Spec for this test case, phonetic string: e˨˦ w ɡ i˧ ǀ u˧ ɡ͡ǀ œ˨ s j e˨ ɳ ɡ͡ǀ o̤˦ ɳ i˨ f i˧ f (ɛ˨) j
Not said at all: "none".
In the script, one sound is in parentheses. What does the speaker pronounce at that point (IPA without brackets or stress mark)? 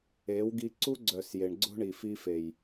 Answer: e˨